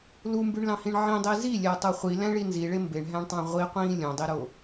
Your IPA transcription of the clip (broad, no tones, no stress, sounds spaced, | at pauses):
l u m b y ɳ l ɑ̃ h ĩ ɳ ʕ ĩ dˤ i z i lʲ æ tˤ o χʷ i l æ̃ ɭ i n z i ɭ e m b e ɳ ɦ æ̃ ɳ tˤ ɑ̃ ʁʷ i qʷ ĩː lʲ õ dˤ i ɾ o